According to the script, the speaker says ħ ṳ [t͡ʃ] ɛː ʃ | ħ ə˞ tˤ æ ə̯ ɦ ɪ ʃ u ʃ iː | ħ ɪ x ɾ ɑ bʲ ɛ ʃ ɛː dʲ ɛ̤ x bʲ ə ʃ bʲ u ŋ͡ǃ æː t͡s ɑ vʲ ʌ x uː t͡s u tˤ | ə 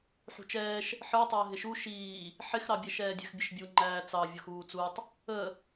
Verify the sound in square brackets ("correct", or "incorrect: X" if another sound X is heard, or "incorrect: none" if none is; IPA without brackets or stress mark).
correct